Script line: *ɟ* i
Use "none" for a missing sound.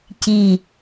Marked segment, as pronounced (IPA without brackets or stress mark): c